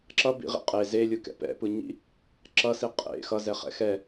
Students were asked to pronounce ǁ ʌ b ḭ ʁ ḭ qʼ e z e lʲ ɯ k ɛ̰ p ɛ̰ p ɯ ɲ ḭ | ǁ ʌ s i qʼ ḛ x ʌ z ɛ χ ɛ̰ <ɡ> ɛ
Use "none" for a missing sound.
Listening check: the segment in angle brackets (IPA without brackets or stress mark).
x